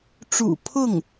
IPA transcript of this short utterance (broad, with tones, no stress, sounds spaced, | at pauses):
ʈ͡ʂ ṵ˨˩ pʰ ʊ˥˩ ŋ